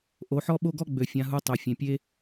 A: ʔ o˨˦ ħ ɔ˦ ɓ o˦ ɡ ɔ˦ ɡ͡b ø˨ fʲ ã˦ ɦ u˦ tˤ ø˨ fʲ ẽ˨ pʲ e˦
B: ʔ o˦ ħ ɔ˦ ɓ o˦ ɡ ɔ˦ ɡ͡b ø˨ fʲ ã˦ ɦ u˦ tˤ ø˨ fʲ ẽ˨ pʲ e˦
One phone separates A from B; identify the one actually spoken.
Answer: A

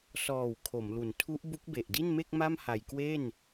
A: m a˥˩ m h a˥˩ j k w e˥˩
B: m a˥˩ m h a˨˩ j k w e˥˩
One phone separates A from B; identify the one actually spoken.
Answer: B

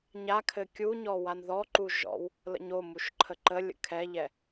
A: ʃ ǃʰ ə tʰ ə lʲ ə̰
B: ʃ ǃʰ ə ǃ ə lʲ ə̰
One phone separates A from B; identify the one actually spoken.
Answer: B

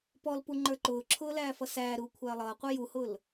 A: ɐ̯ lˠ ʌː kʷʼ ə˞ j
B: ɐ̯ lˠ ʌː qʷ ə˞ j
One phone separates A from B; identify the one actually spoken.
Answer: B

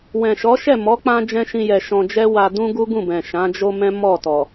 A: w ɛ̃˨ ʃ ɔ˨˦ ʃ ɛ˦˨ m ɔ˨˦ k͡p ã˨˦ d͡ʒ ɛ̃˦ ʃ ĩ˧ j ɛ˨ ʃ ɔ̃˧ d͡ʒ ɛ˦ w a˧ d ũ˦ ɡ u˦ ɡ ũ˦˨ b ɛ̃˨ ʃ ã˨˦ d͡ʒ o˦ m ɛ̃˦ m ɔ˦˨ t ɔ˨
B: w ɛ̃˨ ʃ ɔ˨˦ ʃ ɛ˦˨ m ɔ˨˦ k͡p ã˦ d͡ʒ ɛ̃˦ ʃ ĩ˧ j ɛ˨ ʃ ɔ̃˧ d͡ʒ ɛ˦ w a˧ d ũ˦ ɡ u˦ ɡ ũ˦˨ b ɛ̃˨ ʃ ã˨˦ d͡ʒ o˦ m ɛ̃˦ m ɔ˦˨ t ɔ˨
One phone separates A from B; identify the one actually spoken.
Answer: B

